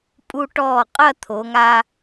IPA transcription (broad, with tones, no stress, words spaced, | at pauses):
pʼu˧ʈɔː˧˩ qʼɐ˥˧t̪ʰo˩˧ŋa˧